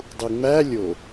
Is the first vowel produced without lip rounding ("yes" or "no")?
no